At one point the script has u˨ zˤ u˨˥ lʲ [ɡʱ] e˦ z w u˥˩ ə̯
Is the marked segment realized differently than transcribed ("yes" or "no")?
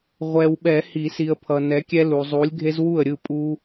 no